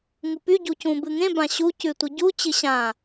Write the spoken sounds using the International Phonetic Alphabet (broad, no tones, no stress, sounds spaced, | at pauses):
ŋ u p y ɟ u c ũ b ɨ ŋ ẽ b ã ɕ u c ʉ tʷ ɨ ɟ u t͡ɕ ɨ ɕ ã